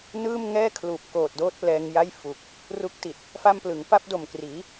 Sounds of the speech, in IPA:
n ɯː˥˩ m ŋ ɛː˥˩ kʰ l uː˨˩ p̚ k oː˨˩ t̚ d oː˥˩ t̚ p l ɛː˧ ŋ j a˥˩ j f u˨˩ k̚ | r u˦˥ k̚ t i˨˩ t̚ | f a˥˩ m p l ɯ˩˦ ŋ p a˥˩ p̚ d o˨˩ m k r iː˩˦

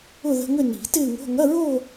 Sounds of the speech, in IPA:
ʊ˥˧ ð ə̤˧˥˧ ŋ ʏ˥˧ n i̤˨˩˦ t ɪː˥˧ ŋ o̤˧˥˧ ŋ ɐ˧˥˧ ɹ o˥˧

